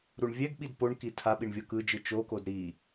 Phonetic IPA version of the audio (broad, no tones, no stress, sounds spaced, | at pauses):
ɾ u ɳ vʲ ɛ ɡ ɓ i d p o ɳ k i tʰ a ɓ i ɳ vʲ ɤ k ɯ d͡ʒ ɯ t͡ʃ o k o d ɾ i